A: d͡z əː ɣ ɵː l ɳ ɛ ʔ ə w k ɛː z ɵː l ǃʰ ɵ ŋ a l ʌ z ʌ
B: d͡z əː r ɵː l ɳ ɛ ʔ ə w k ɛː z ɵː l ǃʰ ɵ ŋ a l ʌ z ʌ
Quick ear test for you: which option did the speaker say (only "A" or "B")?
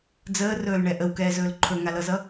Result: B